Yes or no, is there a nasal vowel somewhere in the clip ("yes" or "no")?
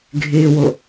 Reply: no